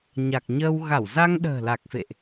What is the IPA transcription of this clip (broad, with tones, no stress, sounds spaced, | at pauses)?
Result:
ɲ a˨˩ k̚ ɲ əː˧ w ɣ a˧˩ w z a˧ ŋ ɗ ə̤ː˨˩ l a˨˩ k̚ f ḛ˧˨ ʔ